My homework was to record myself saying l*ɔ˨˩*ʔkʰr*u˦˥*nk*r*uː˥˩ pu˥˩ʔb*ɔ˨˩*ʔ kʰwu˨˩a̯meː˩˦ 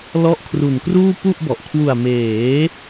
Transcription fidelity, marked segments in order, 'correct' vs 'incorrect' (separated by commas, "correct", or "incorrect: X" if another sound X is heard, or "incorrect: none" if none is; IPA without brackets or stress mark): incorrect: ɔ˦˥, incorrect: u˨˩, correct, correct